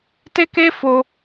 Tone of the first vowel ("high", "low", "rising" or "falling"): high